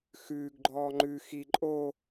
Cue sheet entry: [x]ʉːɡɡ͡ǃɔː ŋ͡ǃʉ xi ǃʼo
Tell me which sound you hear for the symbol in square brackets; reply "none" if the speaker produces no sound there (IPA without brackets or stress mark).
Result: x